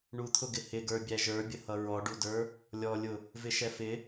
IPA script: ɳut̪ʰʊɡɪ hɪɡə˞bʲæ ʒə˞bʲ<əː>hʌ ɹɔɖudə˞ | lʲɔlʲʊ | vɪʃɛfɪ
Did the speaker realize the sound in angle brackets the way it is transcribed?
no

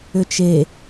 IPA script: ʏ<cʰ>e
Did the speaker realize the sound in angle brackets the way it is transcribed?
no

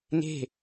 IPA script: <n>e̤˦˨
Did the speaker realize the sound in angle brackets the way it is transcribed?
yes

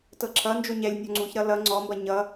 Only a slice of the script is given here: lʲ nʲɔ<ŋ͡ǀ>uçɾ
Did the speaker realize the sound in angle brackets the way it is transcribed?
yes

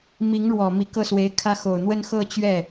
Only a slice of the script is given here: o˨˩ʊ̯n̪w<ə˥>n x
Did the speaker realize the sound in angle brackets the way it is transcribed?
yes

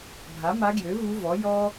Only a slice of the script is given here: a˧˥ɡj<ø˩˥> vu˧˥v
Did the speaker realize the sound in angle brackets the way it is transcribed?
yes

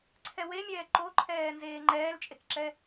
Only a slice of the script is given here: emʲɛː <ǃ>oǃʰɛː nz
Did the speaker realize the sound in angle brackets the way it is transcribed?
yes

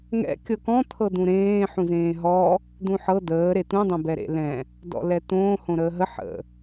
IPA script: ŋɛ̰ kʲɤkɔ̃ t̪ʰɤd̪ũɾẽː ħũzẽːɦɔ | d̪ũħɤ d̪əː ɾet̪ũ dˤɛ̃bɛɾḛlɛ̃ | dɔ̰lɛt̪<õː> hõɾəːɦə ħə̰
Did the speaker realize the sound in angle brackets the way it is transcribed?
yes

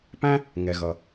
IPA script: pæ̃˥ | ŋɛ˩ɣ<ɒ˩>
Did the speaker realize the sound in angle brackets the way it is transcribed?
no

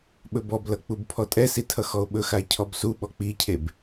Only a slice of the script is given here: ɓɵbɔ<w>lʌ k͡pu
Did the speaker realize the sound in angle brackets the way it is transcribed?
no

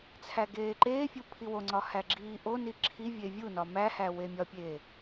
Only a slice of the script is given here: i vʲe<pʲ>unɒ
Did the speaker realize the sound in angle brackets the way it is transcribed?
no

